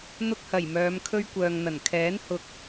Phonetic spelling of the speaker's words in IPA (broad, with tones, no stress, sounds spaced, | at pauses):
n̪ ʊ˧ k̚ h ɐ˨˩ j m œː˨˧ m kʰ ɵ˧ ɥ kʷ œː˨ ŋ n̪ ɐ˨˩ n kʰ ɛː˨˥ n h ʊ˨ k̚